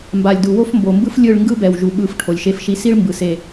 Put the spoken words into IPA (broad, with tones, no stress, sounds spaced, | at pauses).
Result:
m b a˨ lʲ d u˨ w o˦ f m b o˨ m b ɯ˦ f lʲ ɯ˦˨ ɭ ŋ ɡ ɯ˦ b ɛ˨ w ʒ u˨ ɓ ɯ˨ f ʈʰ o˨ lʲ ʃ e˦ f ʃ i˦ s i˦ ɭ m b ɯ˨ s e˦˨